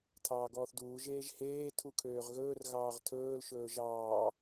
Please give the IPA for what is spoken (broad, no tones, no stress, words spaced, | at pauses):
tʰɑːɡɔːθduː ʒeːʒheː tʰukʰøːʁɣɵːr ɣɑːʁtʰɵːl ʃɵːʒɑː